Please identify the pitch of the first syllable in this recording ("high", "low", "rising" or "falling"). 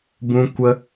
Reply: high